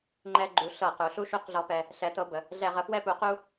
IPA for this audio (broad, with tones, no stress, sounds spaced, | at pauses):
ŋ͡ǃ ɛ˦ ɡ͡ǃ u˨˥ ɬ ɤ˧˩˧ q u˩˧ ɬ u˦ ʃ u˦ q ɮ ɔ˦ p ɛ˦ | ɬ ɛ˨˥ t ɤ˨˥ b ə˩˧ | ɮ ɛ˧˩˧ ʁ ə˨˥ f w ɛ˦ p u˨˥ q u˦